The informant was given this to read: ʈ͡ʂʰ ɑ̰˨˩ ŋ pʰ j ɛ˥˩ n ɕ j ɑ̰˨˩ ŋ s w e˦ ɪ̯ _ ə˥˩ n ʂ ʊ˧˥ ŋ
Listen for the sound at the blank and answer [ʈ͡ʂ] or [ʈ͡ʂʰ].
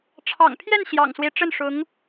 ʈ͡ʂ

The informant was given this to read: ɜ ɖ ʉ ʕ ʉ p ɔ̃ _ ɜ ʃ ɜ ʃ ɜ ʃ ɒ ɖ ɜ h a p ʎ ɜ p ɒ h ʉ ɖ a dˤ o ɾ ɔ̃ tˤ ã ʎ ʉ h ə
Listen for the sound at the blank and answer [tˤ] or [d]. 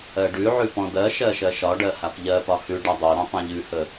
d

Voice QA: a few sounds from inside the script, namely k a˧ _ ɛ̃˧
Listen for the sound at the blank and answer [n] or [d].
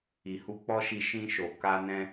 n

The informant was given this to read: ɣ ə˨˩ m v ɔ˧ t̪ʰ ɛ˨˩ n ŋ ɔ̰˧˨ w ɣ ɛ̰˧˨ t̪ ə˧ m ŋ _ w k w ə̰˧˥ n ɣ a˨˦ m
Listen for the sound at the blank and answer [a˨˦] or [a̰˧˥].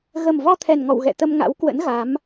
a̰˧˥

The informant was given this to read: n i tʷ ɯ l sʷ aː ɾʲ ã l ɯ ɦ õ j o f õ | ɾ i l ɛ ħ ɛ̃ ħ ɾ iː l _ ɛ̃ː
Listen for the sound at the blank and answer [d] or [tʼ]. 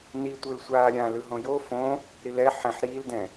d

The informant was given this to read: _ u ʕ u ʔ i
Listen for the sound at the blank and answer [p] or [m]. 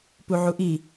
p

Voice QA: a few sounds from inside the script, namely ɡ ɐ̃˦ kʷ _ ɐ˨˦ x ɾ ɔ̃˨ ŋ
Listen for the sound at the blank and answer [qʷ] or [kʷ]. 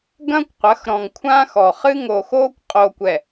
qʷ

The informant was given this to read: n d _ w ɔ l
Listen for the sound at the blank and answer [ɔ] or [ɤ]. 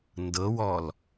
ɤ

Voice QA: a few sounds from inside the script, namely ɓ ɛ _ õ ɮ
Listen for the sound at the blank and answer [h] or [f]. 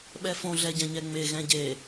f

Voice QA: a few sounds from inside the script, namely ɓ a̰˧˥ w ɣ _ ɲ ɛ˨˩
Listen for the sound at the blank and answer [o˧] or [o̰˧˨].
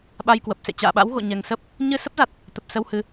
o̰˧˨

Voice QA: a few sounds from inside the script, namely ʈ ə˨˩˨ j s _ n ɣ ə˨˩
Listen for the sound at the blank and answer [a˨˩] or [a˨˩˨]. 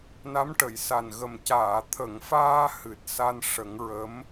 a˨˩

